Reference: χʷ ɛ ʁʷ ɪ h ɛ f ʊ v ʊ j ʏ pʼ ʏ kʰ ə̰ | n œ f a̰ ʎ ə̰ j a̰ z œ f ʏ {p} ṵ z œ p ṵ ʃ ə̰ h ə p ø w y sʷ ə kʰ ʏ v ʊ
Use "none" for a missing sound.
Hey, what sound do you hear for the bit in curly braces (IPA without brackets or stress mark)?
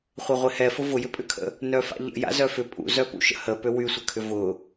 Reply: pʼ